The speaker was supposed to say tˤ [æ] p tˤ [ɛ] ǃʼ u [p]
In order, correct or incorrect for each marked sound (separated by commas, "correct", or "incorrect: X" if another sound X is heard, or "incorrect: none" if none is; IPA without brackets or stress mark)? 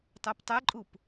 correct, correct, correct